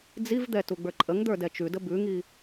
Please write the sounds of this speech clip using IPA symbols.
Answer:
d͡zivd̪ɛ tuɡ͡bə˞ǃʼəŋd̪ə˞ dɛt͡ʃʉdə bʉŋi

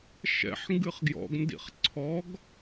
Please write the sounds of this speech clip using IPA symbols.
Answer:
ʃɛ̰ħ ŋɡɨχɡjɔ̰ɡ ndḭχǀʰɔɡ

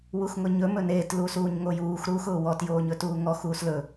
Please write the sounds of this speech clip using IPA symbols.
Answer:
wuxŋʊɲɵ mɵneːt lusuːɲŋojuːx ɾuːxʊːwɔt joːɲɵtuːŋɔ xuːslɵ

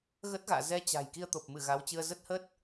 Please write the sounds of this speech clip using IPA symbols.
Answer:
ɣə˦˥t̚ɣa̰ː˧˨ zɛ˧ t͡ɕa̤˨˩j ki˧ə̯t̪o˨˩p̚mɨ˧˩ ɣa˨˦wt͡ɕɨ˧ə̯ zə˦˥t̚hə˦˥t̚

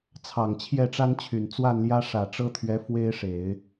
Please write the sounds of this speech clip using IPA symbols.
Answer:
t͡sʰɑ˨˩ŋt͡ɕʰjɛ˥˩ʈ͡ʂa˥nt͡ɕʰy˨˩n t͡swa˥˩nljä˥ ʂä˨˩ʈ͡ʂɤ˥t̪ʰɥɛ˧˥ fwe˥ɪ̯ʂe˨˩˦ɪ̯

